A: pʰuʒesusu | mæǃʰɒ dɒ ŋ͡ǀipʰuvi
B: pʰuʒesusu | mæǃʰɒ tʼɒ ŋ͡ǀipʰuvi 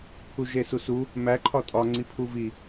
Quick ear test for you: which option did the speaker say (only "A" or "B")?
B